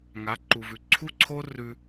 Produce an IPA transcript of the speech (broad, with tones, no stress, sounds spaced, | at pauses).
ŋ a˨˦ ǃ u˨ v ʉ˨ ǀʰ u˦ ǀʰ o˦ r ʉ˦